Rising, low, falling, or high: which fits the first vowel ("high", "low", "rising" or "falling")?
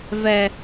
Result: low